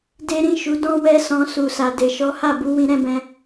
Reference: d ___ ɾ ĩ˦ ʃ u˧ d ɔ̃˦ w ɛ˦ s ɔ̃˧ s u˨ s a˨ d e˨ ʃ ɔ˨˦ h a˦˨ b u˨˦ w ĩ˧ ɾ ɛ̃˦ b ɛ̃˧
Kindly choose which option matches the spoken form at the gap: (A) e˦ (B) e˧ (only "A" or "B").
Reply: A